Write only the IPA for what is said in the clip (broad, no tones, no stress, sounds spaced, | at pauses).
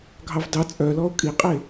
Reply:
ɡʱ ɑ v d ɑ t͡sʼ œ l ɔ o̯ kʼ i qʼ e